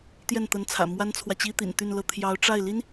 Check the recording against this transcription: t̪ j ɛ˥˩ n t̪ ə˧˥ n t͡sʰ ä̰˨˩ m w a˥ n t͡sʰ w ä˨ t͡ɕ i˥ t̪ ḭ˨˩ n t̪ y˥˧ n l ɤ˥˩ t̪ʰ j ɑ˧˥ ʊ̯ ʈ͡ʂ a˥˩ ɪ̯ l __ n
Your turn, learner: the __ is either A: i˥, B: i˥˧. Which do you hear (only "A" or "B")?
A